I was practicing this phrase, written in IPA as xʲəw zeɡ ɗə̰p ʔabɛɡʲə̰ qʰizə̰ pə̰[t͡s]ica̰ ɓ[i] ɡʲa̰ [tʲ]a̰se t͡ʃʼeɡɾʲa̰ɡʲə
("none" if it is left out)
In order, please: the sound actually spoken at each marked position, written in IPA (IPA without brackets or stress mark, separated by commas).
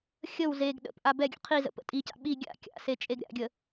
tʼ, i, kʲ